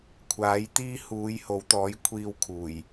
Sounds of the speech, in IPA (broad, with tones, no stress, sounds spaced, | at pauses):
kʷʰ aː˨˥ j t̪ iː˥ h uː˨˧ j h o˨˥ w t̪ ɔː˨˥ j kʷʰ iː˧ w kʰ uː˨˩ j